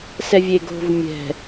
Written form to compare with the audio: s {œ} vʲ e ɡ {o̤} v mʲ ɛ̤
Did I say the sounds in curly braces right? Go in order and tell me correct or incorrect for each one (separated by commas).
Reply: incorrect, correct